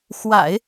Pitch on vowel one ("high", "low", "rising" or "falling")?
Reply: low